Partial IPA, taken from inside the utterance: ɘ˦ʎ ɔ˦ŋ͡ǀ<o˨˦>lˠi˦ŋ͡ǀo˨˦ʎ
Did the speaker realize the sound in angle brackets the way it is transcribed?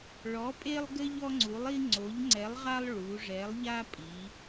no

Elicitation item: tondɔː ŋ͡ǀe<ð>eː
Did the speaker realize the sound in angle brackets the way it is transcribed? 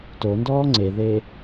yes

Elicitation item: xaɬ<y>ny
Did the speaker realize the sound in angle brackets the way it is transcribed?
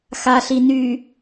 no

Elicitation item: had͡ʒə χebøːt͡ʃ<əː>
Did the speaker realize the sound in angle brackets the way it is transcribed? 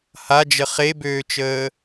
yes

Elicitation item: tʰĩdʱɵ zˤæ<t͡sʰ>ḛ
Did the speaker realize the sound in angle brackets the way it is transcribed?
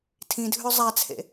yes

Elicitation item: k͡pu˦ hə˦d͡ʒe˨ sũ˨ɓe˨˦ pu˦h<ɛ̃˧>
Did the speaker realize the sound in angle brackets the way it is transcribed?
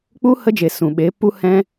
no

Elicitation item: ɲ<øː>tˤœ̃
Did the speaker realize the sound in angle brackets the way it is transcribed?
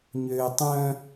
yes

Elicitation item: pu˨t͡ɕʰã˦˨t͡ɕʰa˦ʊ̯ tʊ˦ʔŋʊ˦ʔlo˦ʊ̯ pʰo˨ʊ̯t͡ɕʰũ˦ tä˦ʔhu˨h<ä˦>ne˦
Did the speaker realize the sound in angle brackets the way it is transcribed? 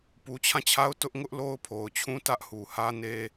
yes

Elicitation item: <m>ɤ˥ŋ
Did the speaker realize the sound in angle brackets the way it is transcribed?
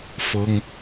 no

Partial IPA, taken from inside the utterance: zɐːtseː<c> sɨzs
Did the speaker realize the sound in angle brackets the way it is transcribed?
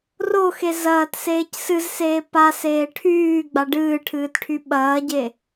yes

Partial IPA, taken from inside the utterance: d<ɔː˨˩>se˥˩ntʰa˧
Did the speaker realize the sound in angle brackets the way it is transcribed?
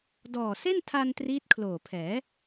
yes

